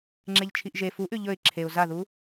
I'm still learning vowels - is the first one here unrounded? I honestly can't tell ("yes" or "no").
yes